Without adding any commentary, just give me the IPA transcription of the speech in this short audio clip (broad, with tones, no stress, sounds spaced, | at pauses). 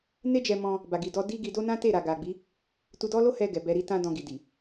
n e˦ d͡ʒ ɛ˧ m ɔ̃˧ | b a˨ ɡ i˨ d ɔ˧ d i˦ ɡ i˧ d o˦ n ã˦ t e˦˨ ɾ a˨ ɡ a˨ ɡ͡b i˨˦ | t u˧ d ɔ˦ l o˦ h ɛ˧ ɡ ɛ˨ b ɛ˧ ɾ i˦ t ã˧ d ɔ̃˧ ɡ i˨ d i˨